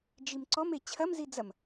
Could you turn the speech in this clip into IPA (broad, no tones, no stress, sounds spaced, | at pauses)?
d͡ʒ i m ǀ ɔ m e t͡ɕʰ ɐ m z i d͡z ɐ m